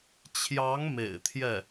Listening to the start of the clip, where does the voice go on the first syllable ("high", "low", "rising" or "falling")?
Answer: rising